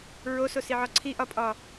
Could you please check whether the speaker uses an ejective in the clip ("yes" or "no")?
yes